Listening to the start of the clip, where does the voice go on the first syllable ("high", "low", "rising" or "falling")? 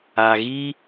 low